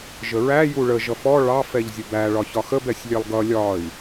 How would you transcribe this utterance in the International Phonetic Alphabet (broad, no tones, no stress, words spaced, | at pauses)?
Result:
ʒəɹæ juɭə ʒʌfɔ ɭɑf ɛʎzʲəbæ ɭɒçɒxəb ɛsʲlʲɛlˠɡʌ lʲɒi̯